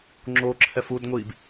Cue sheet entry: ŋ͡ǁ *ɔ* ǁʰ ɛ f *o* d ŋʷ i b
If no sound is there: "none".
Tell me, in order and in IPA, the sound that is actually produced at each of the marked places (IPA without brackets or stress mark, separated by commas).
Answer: o, u